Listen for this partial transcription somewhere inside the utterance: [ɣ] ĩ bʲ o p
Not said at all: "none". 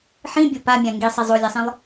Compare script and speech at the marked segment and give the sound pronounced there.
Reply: ħ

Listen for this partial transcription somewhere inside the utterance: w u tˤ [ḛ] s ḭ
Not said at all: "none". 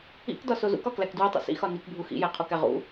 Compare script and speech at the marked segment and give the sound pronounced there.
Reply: ḭ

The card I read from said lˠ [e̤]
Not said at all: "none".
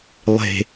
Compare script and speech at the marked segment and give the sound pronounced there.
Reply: e̤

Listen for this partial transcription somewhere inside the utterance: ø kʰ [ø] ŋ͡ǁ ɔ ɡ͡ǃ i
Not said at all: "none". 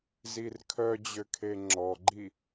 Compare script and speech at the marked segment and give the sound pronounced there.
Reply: e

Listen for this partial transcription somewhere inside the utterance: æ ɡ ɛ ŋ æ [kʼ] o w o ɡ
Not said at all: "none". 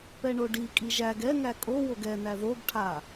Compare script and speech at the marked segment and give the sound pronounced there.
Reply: kʼ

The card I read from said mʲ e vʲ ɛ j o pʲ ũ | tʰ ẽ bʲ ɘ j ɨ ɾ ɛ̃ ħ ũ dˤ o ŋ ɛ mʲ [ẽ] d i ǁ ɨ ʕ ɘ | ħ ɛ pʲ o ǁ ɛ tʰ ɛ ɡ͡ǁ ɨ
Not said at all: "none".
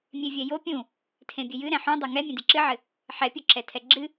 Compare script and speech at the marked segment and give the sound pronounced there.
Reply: ẽ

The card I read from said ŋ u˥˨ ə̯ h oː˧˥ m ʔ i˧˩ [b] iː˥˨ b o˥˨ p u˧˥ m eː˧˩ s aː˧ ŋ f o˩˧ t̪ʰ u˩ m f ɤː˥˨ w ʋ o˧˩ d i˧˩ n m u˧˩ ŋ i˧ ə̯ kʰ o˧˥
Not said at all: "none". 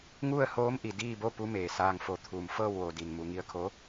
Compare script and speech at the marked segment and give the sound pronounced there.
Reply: d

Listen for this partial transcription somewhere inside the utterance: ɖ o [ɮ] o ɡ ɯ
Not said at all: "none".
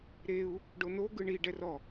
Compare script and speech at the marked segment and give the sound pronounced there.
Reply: n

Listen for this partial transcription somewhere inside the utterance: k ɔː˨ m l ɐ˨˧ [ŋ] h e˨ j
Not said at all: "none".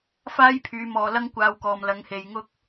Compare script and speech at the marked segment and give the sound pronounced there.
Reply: ŋ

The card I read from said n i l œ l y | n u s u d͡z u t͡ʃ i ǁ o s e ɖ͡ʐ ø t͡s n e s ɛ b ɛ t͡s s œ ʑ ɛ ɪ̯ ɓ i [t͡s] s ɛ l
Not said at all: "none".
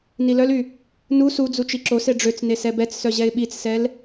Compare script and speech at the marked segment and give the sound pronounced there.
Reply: t͡s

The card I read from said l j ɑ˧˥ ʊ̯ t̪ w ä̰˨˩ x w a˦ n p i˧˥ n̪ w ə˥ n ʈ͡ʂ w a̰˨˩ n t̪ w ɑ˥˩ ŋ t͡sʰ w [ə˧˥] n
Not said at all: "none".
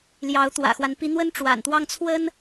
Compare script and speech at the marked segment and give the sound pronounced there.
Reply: ə˥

